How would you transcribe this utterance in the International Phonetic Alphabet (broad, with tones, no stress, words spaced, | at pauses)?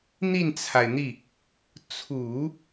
n̪i˥˩nt͡sʰa˩ɪ̯n̪i˥˩ | t͡sʰu˨˩˦